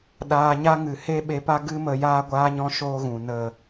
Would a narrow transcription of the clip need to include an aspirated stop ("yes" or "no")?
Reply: no